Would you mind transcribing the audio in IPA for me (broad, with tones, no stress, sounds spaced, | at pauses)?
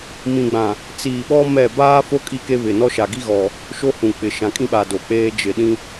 m ĩ˨ ɡ͡b ã˨ | t͡s iː˨ ɓ ɔ˦ m ɛ˦˨ b aː˦ f o˦ kʼ i˦ k e˦ β ɪ˨ n ɔ˦ ʃ a˨ ɡ i˦ ɣ ɔ˨ | ʃ o˦ h ũ˨ k͡p ɪ˨ ʃ ã˨ kʼ ĩ˦ ɓ aː˨ d o˨ k͡p eː˦ d͡ʒ ɪ˨ ɗ ĩ˦